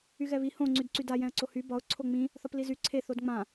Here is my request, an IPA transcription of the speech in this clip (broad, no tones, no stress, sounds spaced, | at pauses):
y ɣ ɛ β i h õ ŋ͡ǀ y d ǀ y d a j ɛ̃ ə̯ ǀ o h y b ɒ ʊ̯ ǀʰ o ŋ͡m ĩ | θ ɒ p l i z y ǀʰ e θ o d ŋ͡m ã